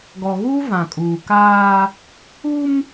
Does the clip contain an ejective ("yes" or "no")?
yes